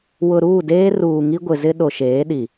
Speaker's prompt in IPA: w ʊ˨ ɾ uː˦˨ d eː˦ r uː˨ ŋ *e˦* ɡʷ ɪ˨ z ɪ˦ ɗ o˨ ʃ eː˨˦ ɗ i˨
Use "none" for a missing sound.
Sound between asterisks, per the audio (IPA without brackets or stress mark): i˦